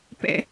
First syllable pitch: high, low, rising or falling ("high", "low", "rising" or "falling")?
low